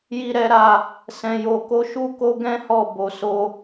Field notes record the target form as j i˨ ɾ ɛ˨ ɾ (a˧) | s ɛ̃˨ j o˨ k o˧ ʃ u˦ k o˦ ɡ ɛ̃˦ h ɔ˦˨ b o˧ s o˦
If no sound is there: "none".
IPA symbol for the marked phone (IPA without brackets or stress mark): a˨